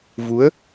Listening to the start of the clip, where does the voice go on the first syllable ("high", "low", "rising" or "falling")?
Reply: rising